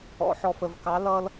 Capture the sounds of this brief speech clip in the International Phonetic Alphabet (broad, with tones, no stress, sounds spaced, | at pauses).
ɔ̰˩˧ ħ ɔ˨˩ f ə˨˩ v k ɑ˩˥ l ʌ˧ l